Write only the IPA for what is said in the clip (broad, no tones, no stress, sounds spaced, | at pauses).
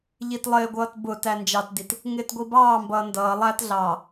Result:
ʎ i t lˠ ɪː ɡʷ ʌː t b ʊ t æ n d͡ʒ ɑ t d i t | ŋ ɪː t ɡʷ i b ɑː m b ʌː n d ʌː lˠ æ t ɮ ɑː